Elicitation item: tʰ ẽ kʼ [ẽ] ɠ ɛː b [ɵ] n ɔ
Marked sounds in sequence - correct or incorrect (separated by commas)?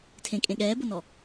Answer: correct, incorrect